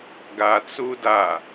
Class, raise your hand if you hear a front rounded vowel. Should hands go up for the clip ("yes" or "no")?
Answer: no